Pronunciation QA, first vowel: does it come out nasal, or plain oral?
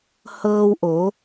oral